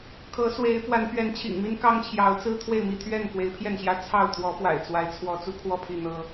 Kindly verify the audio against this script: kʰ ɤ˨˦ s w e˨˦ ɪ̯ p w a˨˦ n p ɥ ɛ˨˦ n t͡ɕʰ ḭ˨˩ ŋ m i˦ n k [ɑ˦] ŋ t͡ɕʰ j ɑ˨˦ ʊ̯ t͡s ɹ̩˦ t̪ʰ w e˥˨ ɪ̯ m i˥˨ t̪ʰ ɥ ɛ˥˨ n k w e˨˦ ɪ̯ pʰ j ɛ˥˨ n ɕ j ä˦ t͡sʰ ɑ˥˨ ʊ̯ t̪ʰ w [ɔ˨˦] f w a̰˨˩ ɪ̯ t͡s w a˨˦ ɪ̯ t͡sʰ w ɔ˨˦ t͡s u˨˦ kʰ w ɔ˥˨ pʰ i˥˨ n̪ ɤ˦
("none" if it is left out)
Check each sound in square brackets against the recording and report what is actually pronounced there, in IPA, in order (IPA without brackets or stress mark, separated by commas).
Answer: ɑ˦, ɔ˨˦